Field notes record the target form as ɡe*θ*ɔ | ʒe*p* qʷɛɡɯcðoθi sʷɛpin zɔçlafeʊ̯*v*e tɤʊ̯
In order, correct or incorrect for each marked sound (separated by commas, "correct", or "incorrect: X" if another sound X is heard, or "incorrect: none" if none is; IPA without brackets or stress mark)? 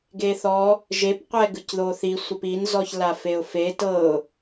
correct, correct, incorrect: f